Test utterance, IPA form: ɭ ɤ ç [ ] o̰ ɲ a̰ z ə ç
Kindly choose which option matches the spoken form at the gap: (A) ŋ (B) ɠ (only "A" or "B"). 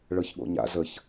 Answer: B